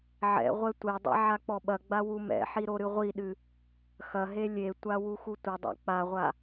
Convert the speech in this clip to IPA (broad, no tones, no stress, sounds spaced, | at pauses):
ʕ ɛ̰ ʁʷ ɛ tʷ ɛ dˤ ɛ̰ ʕ a k͡p ɔ ɓ ɐ ɡ͡b a w u m ɛ̰ ħ i ɾ o ɾ ɨ ʁʷ i ɗ ɨ | x ɐ ɦ e lʲ e tʷ a w u x u tʷ ɘ dˤ a̰ k͡p a ʁʷ a